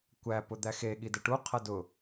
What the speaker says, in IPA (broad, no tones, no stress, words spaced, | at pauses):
kʷæpʊ d̪æxe ɠidəʈu qʰɐdʊ